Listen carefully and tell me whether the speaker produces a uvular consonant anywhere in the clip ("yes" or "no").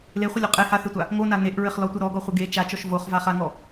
yes